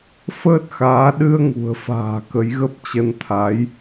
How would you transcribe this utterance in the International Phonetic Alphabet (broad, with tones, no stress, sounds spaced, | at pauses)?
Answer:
f əː˦˥ t̚ x aː˨˦ ɗ ɨ˧ ə̯ ŋ ṳ˨˩ ə̯ f a̤ː˨˩ k ə˨˦ j ɣ ə˦˥ p̚ t͡ɕ ə˧ n t̪ʰ a˨˦ j